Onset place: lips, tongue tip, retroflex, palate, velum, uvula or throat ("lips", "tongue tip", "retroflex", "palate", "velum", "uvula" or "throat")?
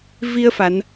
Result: lips